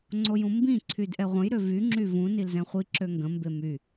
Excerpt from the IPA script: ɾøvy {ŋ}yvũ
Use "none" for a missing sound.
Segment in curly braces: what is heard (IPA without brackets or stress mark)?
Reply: ŋ͡ǁ